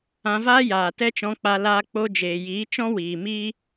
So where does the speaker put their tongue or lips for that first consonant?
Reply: lips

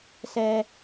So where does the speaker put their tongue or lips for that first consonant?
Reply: tongue tip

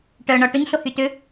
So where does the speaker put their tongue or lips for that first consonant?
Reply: retroflex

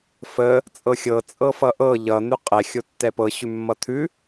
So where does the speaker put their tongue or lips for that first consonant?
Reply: lips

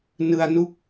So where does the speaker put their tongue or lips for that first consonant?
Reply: tongue tip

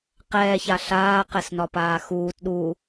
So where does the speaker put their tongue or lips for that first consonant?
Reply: uvula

